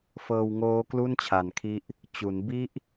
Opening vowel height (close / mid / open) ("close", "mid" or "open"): mid